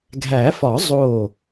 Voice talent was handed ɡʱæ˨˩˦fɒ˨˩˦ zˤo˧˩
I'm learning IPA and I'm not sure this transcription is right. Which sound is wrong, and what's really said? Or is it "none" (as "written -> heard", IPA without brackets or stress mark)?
none